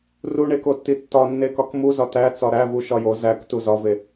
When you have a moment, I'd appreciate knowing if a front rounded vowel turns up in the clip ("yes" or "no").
no